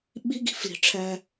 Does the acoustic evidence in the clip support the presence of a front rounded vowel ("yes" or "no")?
no